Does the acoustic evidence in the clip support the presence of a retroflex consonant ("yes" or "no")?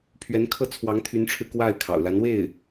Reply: yes